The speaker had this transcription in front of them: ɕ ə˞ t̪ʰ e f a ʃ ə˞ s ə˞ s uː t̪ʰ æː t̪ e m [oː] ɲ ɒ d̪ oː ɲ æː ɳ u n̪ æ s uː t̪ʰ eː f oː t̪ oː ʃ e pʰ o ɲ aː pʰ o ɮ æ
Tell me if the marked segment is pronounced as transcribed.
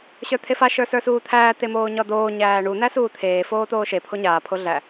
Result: yes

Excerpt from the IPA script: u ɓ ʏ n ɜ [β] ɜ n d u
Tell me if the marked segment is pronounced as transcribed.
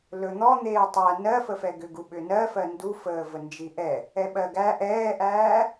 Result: no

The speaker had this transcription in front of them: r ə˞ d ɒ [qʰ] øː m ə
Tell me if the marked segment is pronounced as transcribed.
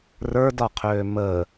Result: yes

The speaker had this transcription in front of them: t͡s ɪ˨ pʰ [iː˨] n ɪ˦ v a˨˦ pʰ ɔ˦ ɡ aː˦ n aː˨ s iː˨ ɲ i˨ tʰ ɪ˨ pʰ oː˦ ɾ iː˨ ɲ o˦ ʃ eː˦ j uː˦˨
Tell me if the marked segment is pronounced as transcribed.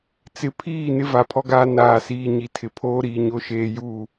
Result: no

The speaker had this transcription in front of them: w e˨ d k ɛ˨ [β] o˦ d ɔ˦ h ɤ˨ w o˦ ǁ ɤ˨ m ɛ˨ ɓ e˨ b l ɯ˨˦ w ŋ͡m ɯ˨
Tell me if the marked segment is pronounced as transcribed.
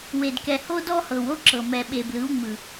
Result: no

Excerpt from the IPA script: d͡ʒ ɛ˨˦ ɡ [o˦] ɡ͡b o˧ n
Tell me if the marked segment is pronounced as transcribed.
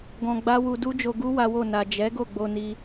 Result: no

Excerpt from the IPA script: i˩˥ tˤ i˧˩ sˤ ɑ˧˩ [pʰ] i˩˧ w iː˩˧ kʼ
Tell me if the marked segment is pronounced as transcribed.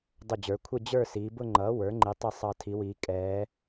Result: no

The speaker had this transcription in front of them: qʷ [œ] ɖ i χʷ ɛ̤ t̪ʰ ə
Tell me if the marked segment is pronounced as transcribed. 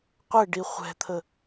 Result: no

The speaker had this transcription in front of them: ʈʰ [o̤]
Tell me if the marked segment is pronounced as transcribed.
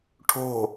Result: yes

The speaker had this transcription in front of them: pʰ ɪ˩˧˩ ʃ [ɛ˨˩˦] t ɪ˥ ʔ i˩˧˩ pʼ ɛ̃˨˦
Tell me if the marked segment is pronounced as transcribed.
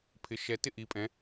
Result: no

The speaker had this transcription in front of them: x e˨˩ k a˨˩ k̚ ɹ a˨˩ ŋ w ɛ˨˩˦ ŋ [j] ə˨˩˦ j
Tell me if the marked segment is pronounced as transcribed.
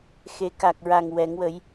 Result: no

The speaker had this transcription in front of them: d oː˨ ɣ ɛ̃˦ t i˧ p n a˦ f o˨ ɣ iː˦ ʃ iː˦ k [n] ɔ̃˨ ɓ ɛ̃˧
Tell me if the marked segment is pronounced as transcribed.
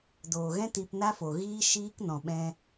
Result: yes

